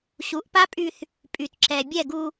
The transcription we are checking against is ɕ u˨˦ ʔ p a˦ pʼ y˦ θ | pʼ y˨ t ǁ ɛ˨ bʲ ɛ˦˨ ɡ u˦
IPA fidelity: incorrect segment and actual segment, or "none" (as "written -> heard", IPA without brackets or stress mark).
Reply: none